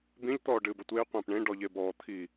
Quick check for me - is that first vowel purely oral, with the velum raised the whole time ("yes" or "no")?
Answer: no